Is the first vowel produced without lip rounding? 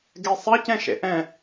yes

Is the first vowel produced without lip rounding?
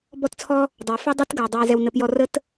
no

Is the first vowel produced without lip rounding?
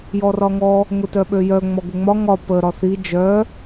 no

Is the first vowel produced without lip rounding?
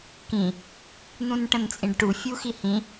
yes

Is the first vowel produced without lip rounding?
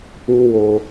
no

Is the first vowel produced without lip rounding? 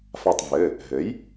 yes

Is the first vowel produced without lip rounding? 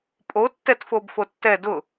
no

